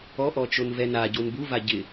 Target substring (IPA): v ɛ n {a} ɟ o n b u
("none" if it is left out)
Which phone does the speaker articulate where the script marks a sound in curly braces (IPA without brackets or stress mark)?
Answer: a